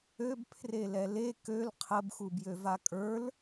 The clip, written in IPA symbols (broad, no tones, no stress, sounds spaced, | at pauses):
ø b pʰ r e l ɛ l e k ø l qʰ ə b x u b j ø v a kʼ ə˞ l